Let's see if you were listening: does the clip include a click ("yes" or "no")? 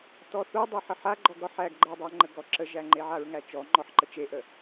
yes